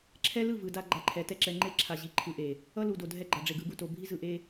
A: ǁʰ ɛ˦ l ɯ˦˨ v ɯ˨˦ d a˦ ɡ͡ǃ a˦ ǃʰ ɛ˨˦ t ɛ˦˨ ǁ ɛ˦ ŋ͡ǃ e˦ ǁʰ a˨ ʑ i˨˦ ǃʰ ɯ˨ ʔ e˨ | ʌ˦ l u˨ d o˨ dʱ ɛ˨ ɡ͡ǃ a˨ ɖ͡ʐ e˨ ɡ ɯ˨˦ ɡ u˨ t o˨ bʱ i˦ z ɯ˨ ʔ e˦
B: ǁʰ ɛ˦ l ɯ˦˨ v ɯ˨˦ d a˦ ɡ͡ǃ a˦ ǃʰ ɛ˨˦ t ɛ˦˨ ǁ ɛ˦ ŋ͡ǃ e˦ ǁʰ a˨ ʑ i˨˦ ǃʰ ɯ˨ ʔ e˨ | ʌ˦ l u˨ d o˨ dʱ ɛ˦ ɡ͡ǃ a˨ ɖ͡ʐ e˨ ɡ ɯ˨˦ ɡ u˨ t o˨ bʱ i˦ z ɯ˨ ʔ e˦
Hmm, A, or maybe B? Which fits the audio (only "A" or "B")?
B